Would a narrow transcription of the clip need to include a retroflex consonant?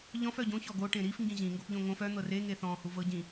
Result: yes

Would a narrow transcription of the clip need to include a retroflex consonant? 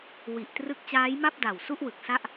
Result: no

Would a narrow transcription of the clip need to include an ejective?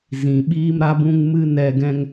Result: no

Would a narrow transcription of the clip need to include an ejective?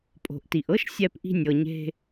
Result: yes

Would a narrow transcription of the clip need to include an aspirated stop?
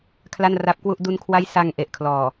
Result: yes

